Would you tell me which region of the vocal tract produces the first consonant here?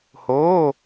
throat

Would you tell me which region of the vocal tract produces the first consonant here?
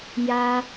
palate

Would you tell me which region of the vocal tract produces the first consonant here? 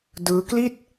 tongue tip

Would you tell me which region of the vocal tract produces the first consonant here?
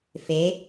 lips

